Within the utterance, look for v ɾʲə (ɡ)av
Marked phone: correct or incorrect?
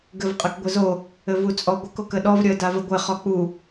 incorrect